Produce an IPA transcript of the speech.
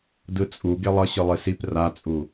d ɯ t͡sʼ u ɡ e lˠ ʌ ɕ ɯ lˠ i s i p r a t͡sʼ u

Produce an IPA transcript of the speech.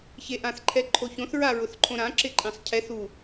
ç e ʔ ã θ ǃʰ ɛ ǃʰ o ç õ θ ɹ a ɹ ʊ θ ǃʰ õ ɾ ã ǁ ɪ ǃʼ ẽ sˤ cʰ ɛ θ u

